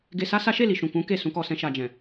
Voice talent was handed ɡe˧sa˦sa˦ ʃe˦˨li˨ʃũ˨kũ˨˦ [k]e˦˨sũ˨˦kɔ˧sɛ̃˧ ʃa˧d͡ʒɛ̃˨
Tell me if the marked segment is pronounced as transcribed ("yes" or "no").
yes